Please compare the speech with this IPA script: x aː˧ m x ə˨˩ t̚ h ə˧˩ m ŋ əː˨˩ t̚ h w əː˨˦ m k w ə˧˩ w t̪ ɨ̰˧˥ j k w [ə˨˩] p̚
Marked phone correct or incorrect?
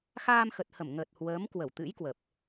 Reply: correct